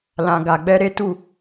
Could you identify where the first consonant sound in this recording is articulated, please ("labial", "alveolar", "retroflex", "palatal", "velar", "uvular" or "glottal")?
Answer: alveolar